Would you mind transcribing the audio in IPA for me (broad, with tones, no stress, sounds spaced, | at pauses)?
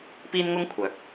p iː˥ n ŋ ʊ˥ ŋ kʷʰ œː˨˥ k̚